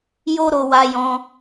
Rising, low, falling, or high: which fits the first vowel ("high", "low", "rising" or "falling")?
high